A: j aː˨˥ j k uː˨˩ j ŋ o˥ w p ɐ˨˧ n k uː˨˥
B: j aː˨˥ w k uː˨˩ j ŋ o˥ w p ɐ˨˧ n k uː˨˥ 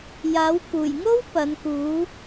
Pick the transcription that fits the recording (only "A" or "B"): B